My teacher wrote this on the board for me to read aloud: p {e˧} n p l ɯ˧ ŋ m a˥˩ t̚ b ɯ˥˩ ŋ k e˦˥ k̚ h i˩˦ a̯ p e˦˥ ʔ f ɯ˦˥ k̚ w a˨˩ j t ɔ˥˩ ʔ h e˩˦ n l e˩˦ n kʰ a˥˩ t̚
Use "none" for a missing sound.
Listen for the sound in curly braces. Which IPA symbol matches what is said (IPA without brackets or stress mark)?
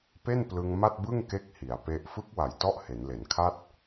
e˥˩